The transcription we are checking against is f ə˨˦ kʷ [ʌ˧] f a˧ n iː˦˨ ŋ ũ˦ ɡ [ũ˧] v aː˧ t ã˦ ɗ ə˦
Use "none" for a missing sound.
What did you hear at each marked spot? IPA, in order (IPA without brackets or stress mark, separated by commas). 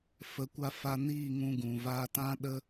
a˧, ũ˨